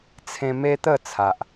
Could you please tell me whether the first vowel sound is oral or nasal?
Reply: nasal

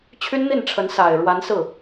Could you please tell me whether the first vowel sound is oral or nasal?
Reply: oral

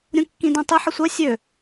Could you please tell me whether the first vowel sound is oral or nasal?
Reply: nasal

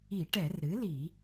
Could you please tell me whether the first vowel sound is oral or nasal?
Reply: oral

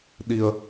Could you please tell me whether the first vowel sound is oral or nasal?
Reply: oral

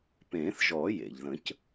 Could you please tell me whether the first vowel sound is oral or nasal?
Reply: nasal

